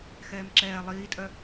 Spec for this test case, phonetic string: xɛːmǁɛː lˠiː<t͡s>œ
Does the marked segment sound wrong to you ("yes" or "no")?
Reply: yes